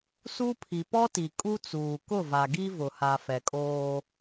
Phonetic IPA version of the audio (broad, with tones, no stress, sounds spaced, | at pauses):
s u˦ pʰ i˨ p ɔ˦ t i˨ kʼ u˦ t͡s uː˨ k ʊ˦˨ v a˨ ɡ i˦ v ʊ˨ h a˨ f ɛ˨ kʼ oː˦